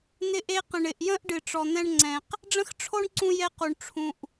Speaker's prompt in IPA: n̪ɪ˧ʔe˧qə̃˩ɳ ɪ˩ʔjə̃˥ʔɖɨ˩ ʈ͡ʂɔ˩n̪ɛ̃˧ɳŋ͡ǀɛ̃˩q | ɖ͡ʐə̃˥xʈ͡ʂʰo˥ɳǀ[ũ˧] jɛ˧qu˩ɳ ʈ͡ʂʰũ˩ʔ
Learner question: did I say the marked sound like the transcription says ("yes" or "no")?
yes